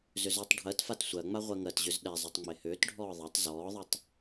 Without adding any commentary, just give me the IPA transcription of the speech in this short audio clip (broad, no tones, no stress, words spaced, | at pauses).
zʏzʏːtˤɖʱɜtfat sʷɜŋ͡ma ʁʷɜŋɜtʑʏz ɗɛzˤɛtˤ ŋ͡mehʏːtɖʱɔː ðˤɛtˤ zɔːðˤʏtˤ